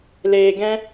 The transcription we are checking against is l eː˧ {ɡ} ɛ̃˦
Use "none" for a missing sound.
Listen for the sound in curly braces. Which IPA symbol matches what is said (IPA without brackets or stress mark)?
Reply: ɡ